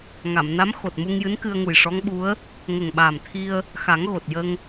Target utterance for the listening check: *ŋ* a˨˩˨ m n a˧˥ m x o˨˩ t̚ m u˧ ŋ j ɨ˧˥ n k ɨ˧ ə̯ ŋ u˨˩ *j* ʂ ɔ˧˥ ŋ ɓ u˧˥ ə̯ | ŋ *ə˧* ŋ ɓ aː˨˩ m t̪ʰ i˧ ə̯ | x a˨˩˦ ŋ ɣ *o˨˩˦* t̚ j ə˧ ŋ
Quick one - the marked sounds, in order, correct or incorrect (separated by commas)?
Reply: correct, correct, incorrect, incorrect